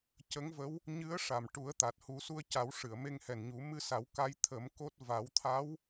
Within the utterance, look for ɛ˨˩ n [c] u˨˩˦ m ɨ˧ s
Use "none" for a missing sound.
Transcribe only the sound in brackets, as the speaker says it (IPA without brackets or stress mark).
ɲ